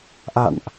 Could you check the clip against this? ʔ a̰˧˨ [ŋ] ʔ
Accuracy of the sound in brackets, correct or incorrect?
incorrect